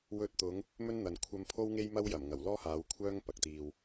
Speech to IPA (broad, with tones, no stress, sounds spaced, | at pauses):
w ɵ˧ t̚ t̪ ʊ˨˧ ŋ | m ɵ˥ n n̪ ɐ˨ n kʷʰ ɐ˧ m pʰ o˥ w ŋ e˥ j m ɐ˥ w j ɐ˨˩ m ŋ ɐ˨˩ w l ɔː˥ h aː˨˧ w kʷʰ œː˥ ŋ p ɐ˨ k̚ t̪ iː˧ w